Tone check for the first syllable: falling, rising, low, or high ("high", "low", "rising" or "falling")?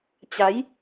rising